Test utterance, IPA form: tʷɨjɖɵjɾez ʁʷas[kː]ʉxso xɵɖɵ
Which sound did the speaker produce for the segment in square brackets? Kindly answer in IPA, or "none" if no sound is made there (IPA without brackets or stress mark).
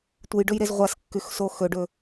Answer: kː